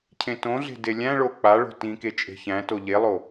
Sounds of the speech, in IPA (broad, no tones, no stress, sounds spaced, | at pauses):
cʰ ẽ t õ ɮ e̤ d e lʲ æ̃ ɭ o k͡p a ɭ o̤ t ĩ k e t͡ʃʼ e̤ ç æ̃ t o ʎ e lˠ o